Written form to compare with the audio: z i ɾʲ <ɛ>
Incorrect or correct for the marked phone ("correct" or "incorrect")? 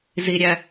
incorrect